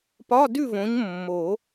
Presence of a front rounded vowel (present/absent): absent